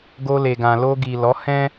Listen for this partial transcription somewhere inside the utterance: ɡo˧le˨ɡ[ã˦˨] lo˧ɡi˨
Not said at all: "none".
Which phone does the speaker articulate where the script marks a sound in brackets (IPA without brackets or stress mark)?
ã˨